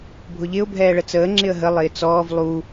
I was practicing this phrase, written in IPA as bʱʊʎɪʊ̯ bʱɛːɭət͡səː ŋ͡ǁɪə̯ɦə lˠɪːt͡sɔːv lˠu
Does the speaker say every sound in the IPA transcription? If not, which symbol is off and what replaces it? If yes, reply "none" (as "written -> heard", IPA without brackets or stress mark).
none